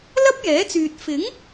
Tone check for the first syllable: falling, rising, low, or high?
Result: high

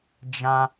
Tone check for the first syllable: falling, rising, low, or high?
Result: high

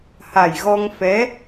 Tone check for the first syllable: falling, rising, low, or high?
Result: low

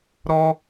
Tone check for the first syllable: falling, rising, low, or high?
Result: high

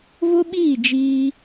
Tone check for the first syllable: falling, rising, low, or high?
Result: high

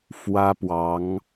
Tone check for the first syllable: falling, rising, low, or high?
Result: high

